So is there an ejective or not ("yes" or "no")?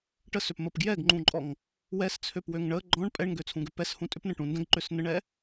yes